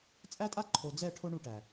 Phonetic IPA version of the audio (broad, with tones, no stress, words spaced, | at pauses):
t͡sʼæ˦tʼa˦ǃʰo˨d͡zɛ˦˨ ʈʰo˦ɳu˦˨ʈæ˨